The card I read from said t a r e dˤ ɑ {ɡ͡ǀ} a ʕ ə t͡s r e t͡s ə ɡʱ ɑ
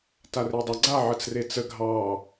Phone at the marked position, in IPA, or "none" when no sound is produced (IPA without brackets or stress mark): ɡ͡ǀ